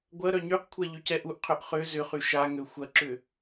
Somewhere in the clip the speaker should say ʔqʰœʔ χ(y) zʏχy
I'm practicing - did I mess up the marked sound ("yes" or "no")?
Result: yes